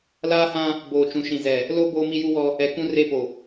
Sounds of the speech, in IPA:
laː˦hã˦ | boː˨t͡ʃũ˨ʃĩ˨zɛ˨ | lo˦ boː˦mi˦ju˦wɔ˦ | ɛ˨ kũ˦re˦˨po˨

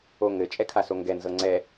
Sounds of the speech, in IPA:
oŋɘ t͡ʃʼɛkʰasoŋɡɛ nzɤŋ͡ǀɛ

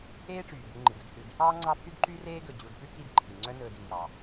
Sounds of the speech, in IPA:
eː˦ʈ͡ʂyː˩ bu˨ŋ͡ǃi˩ɡʉ˨dhʉ˨d | ɑː˥ŋ͡ǀɑ˦pʰy˥d ǃy˦reː˦ɡɵ˩ d͡ʑu˨dpʉ˥ ki˨d ǃʰi˩ ŋ͡ǀœ˦nɵː˨d iː˩jɑ˩

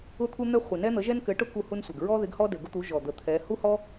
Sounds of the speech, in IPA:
ʊ˥t̪ʰu˥ n̪ɛ˥χʷɪ˨˩ nɛ˥n̪ə˨˥ʒɛ˥n kɘ˨˥ʈʊ˥ ku˥hu˥nsʷɛ˨˩ɡ ɹɔ˥ ðɪ˨˥ɡhɔ˥ dɘ˨˩ɡʊ˥t̪u˨˥ ʒɔ˨˩d̪ə˨˩ t̪ʰɛ˨˥ hu˥hɔ˥

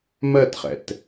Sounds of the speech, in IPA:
mɜtχɛ̰t

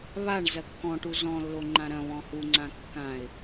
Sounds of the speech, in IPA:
βaɳ zɐkːɔ̃ʈu zɔ̃lːo ŋ͡ǃãɾɐ̃βɔ̃ huŋ͡ǀã kːãɪ̯

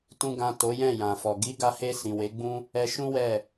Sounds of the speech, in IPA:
tũ˨ɡã˨ to˨˦jɛ̃˦˨jã˨fɔ˨ ɡi˨˦ɡa˧he˧ sĩ˨we˨˦ɡ͡bũ˦ | ɛ˧ʃũ˦wɛ˦˨

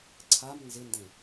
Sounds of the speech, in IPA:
ǀʰam nzɪndẽ

